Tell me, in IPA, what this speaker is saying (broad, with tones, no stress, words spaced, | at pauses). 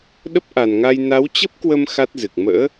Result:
ɗə˦˥p̚ʔa˨˩nŋa˧j na˨˦wt͡ɕə˦˥p̚kwə˧m xa˦˥t̚zɨ˨˩k̚ mə̰ː˧˥